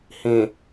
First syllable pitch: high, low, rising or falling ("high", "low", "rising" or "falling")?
low